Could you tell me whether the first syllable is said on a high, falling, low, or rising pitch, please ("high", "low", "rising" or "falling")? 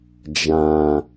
low